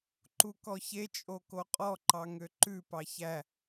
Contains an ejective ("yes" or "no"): yes